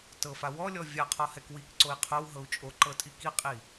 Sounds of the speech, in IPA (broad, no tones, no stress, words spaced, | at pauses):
tɤfa wɔlʲɔ vʲaqʰɔhɛk wikǀoi̯ qʰowɦɤu̯ t͡ʃʼoǃɤtʼi kiqʼi